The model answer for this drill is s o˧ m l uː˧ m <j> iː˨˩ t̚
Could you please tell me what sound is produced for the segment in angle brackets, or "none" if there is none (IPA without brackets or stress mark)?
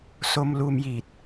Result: j